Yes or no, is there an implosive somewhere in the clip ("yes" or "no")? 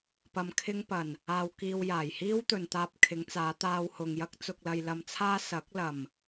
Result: no